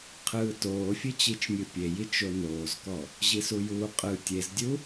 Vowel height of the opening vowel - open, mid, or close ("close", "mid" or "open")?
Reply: close